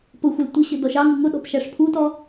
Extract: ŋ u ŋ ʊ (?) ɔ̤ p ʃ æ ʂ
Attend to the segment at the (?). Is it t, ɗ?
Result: ɗ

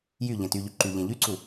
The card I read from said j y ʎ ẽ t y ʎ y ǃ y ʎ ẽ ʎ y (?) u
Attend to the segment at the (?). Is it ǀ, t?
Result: ǀ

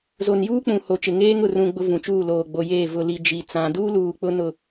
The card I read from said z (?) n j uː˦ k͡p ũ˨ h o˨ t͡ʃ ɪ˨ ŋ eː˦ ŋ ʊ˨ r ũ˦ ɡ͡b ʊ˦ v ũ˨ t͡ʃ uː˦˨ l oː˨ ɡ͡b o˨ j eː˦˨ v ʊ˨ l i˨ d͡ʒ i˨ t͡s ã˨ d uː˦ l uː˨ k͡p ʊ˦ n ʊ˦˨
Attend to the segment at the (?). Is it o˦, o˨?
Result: o˨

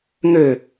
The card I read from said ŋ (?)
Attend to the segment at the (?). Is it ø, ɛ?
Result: ø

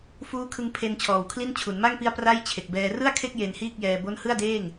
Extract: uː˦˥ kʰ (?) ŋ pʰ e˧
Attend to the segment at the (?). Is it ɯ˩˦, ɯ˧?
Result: ɯ˧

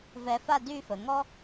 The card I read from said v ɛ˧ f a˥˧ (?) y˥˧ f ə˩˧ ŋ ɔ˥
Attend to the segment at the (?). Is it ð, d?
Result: d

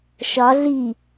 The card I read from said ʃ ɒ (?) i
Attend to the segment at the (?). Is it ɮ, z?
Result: ɮ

